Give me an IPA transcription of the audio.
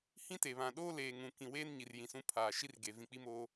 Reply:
h ĩ˦ t e˨ β ã˨ ɗ oː˦ l eː˨ ŋ ũ˨ k ĩ˨ w eː˦ n ɲ i˨ r j ĩ˨ s ũ˦ pʰ aː˨ ʃ i˦ r ɡ e˨ v ĩ˨ k͡p i˦ m oː˦

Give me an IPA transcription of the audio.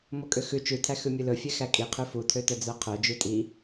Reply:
m o kʼ ø x ʉ t͡ʃ ʉ tʰ æ x ʉ mʲ ɵ l ɵ fʲ ɛ x æ kʼ i qʰ ʉ f u tʰ ø t œ d͡z œ qʰ œ d͡ʒ ʉ tʼ i

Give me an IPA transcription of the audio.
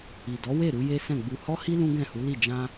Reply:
i˨ d ɔ˨˦ w e˦˨ ɾ u˨˦ j e˦ s ɛ̃˦˨ ɡ͡b u˧ h ɔ˦ h i˦ l ũ˦ ɡ ɛ̃˦˨ h u˨˦ l i˦˨ d͡ʒ ã˧

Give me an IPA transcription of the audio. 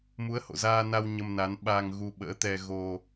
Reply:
m u˨˦ ə̯ h o̰˧˨ z aː˧ n a˧ w ɲ ə˧ m n a˨˦ n ɓ aː˧ ŋ ɣ u˧ ɓ ə̰ː˧˥ t̪ ɛ˧ ɣ o˧

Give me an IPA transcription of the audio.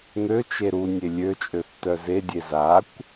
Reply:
n̪ ø t͡ʃ e ɾ u nʲ e lʲ ø t͡ʃʼ ø θ t œ z e dʲ e z a kʷ

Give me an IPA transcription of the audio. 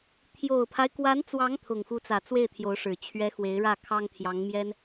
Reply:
t̪ʰ j o˨˩ ʊ̯ pʰ a˦ ɪ̯ k w a˧˥ n t͡s w ɑ˧˥ ŋ t̪ʰ ʊ˨˩ ŋ x u˧˥ t͡s ä˨˩ t͡s w e˥˩ ɪ̯ t̪ʰ j o˧˥ ʊ̯ ʂ ɻ̩˨˩ t͡ɕʰ ɥ ɛ˧˥ x w e˧˥ ɪ̯ ɻ ä˥˩ kʰ ɑ˥ ŋ t̪ʰ j ɑ˧˥ ŋ m j ɛ˥ n

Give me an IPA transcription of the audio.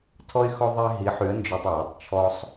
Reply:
tʰ ɔ˧ ɪ̯ x ɔ˧ ðˤ ɛ˧ ɦ i˨˥ ħ y˨˥ ə̯ n d͡ʒ ø˧ tˤ w ɛ˩˧˩ tˤ t͡ʃʰ ɔ˧ sˤ

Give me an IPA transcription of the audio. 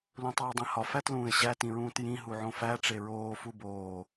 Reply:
l ũ tˤ oː dˤ ĩ h ɒ f æ t l ũː ɪ̯ ɕ æ t ĩ ɹ ũː t j ĩ ɦ u ʕ õ f æ ʈ͡ʂ e ɹ oː f u b oː

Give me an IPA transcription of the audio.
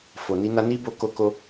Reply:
f o˨ n i˧ n a˧ n i˦ b o˧ k o˦ k o˦

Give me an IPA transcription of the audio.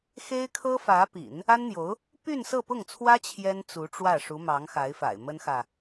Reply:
x e˥ ɪ̯ kʰ ɤ˥ f ä˧˥ p ḭ˨˩˦ n | a˥ n n̪ j o˧˥ ʊ̯ | p y˥˧ n s ɤ˥˧ p ʊ˥˩ ŋ t͡sʰ w ä˥ t͡ɕʰ j ɛ˥ n t͡s u˧˥ ʈ͡ʂ w ä˥˩ ʂ u˧˥ m ɑ˧˥ ŋ x a˧˥ ɪ̯ f a̰˨˩ ɪ̯ m ə˥ n x ä˨

